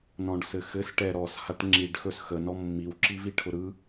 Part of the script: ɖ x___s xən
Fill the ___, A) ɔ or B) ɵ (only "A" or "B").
B